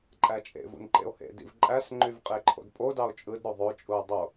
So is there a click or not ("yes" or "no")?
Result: yes